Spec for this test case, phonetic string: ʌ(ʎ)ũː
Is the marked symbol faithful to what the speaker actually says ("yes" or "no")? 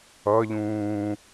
yes